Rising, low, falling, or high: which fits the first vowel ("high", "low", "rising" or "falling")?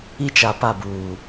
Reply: high